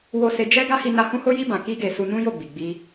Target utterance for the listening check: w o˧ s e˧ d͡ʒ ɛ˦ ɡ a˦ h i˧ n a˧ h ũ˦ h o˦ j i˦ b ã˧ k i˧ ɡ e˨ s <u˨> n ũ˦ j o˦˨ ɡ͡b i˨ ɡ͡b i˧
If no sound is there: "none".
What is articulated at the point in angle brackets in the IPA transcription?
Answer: u˧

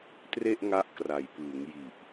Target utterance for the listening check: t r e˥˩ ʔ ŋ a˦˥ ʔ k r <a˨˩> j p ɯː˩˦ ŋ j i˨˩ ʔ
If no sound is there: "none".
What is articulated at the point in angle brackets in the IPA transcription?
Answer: a˨˩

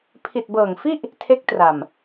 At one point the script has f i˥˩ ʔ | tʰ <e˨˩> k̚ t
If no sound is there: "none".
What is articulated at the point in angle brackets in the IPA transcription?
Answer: e˦˥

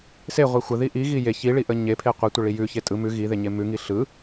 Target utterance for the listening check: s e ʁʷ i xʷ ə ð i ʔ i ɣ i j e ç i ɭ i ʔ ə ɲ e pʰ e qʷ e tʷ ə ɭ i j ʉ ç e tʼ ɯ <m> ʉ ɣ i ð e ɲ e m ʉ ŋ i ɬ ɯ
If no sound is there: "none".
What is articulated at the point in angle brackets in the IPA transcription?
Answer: m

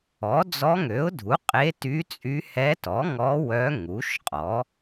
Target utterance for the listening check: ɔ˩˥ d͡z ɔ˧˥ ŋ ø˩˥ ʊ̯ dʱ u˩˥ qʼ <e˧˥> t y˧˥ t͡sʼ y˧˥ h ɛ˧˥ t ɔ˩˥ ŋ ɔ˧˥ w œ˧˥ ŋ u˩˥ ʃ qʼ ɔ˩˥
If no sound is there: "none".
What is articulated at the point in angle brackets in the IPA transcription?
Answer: e˧˥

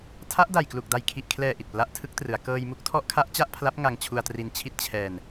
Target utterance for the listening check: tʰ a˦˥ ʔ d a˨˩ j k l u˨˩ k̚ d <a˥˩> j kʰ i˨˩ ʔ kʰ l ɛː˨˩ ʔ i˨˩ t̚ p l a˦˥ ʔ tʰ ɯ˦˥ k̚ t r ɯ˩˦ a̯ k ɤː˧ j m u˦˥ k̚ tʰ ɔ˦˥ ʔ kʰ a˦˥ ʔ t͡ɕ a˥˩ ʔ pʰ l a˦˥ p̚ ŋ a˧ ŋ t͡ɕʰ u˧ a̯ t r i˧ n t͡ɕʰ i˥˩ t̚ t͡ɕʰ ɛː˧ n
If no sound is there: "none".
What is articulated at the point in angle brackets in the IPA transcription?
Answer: a˨˩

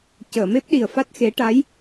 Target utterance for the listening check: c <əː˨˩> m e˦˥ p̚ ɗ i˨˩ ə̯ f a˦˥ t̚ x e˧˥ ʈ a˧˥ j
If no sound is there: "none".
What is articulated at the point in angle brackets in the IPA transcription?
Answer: əː˨˩˨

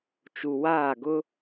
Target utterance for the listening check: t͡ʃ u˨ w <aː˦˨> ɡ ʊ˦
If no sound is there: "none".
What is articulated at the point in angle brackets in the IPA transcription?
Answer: aː˦˨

